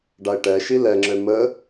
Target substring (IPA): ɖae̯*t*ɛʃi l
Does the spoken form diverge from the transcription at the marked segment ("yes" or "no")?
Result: yes